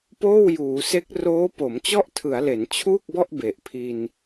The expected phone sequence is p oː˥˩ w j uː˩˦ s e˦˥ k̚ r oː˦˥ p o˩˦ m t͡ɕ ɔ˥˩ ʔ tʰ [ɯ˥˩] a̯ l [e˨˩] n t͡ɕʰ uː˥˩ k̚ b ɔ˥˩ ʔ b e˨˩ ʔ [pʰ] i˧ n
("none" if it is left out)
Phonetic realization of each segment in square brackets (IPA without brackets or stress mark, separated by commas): ɯ˩˦, e˩˦, pʰ